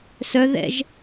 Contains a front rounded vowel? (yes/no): yes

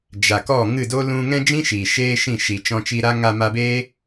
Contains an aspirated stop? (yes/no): no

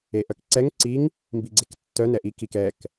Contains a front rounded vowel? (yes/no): yes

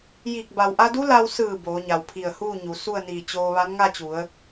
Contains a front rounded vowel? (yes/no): no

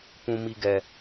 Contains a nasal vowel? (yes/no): yes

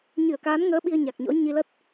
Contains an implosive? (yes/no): yes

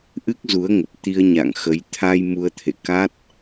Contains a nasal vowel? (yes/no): no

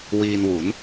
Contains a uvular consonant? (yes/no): no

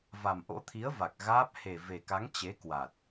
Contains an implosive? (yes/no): no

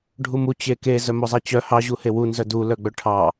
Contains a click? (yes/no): no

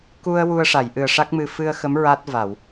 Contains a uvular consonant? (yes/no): no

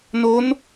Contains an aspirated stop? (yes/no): no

